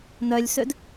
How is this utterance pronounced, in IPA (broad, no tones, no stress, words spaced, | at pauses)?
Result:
nœlʲsød